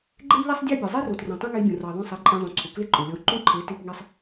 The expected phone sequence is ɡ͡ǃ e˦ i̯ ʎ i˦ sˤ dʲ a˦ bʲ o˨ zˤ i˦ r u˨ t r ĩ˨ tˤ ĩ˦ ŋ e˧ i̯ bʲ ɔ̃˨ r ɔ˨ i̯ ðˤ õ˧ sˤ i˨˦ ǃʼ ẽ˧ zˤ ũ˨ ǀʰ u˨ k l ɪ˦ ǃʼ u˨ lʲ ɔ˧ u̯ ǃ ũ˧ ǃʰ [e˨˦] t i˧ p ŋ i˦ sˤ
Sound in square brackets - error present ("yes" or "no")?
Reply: no